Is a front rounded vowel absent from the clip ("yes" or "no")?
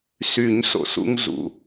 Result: no